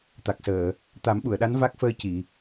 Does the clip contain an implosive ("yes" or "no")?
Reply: yes